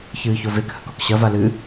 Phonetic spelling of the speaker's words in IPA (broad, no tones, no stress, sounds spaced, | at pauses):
ç ɨː ç o v e k h ɵ k o k ɕ ɐ v a l ɨ